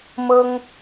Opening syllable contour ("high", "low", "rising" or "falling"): high